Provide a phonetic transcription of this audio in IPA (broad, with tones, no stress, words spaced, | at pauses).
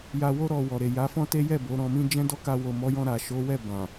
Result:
ja˧wo˦ ɾɔ˧ wɔ˨ɾe˨ ja˨˦fɔ̃˦te˦jɛ˦˨ bo˨˦ɾɔ̃˧mĩ˦ d͡ʒɛ̃˦dɔ˦˨ ka˧wo˨mɔ˨˦jɔ̃˧ ɾa˨ ʃo˨˦wɛ˦˨ bã˨